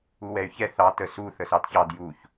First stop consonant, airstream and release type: plain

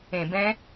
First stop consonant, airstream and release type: plain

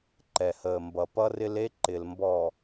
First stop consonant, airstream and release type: click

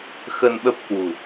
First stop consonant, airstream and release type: implosive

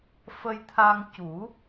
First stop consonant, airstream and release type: aspirated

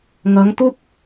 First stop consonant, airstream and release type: plain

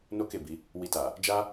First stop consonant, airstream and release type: plain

